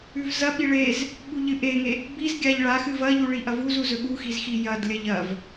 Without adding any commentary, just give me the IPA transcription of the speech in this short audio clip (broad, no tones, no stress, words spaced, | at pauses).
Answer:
ʉvzɐɓi ɭez | ɓuʎɨʔeŋe | bizɡʲaʎ ɭaxɨ vɐʎu ɭiʔɐvuzu zɵɠuxiz xijɐdlʲɐʎ ɐv